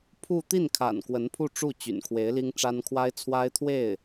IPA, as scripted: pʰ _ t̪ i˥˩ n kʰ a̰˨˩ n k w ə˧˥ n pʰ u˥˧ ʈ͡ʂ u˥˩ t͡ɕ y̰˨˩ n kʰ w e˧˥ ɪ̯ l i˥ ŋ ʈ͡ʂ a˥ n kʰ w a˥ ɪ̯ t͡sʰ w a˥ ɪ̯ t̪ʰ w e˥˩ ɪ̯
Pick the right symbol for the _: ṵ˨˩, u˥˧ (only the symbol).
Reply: u˥˧